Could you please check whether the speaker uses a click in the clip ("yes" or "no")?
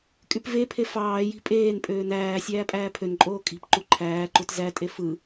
yes